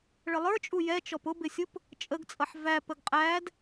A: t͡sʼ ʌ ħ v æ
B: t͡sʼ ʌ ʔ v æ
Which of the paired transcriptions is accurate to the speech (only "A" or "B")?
A